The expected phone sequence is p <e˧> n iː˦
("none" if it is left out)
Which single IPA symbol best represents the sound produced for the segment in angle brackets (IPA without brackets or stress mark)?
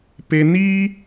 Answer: e˧